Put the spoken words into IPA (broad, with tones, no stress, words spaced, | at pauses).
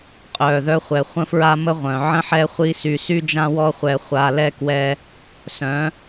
qʼœː˨ðœ˧χʷɛ˨ χʷə̃˦fɹa˦ mə˦ʁʷœ̃˨ ʕə̃˦ħɛ˦χʷi˦sy˧ sy˦d͡ʒã˦wɔ˦χʷɛ˧ χʷa˧lɛ˦ kwɛ˦ | sœ̃˨˦